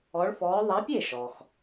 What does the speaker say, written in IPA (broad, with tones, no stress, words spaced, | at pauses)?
ɔ˨˦ɭfɔː˨˦ ðˤa˨˦pʲe˥˩ʃɔ˩x